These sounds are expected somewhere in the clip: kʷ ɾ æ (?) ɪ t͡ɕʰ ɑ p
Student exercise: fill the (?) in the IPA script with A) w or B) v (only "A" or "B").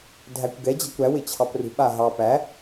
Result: A